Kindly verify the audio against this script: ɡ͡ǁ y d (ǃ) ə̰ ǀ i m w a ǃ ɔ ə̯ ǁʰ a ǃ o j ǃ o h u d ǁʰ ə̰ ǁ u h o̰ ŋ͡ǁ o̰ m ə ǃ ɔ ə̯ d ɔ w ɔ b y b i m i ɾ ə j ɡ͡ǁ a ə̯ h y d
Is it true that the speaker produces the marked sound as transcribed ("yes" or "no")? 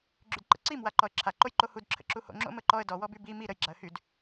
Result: yes